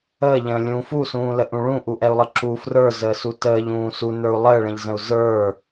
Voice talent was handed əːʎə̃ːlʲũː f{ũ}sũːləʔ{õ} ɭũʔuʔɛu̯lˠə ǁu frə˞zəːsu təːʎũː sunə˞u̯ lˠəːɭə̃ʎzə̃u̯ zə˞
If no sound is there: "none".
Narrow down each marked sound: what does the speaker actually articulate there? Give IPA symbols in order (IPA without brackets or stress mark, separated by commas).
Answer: u, ũ